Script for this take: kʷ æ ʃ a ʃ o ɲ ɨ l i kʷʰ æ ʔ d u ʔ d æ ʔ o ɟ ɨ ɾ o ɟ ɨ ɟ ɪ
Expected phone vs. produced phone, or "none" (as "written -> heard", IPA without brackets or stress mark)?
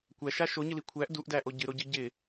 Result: none